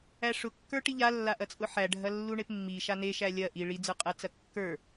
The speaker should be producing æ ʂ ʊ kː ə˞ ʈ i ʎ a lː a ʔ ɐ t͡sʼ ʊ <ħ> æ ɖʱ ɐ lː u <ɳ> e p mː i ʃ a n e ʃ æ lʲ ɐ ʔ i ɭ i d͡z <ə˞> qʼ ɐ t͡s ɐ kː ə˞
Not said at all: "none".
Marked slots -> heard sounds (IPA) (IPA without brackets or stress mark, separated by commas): ħ, ɳ, ə˞